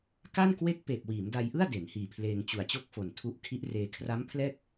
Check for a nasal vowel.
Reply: absent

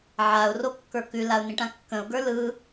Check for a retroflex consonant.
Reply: present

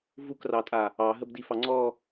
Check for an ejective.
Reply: present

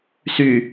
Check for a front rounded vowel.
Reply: present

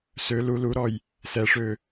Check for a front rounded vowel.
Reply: present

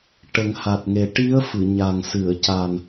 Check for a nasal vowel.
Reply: absent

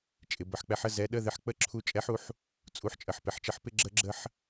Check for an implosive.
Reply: present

